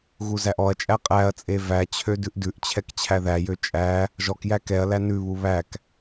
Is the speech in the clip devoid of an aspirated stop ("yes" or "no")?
no